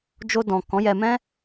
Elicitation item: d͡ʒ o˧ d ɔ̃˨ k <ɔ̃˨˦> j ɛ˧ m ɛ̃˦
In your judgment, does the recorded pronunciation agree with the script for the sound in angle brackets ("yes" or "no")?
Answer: yes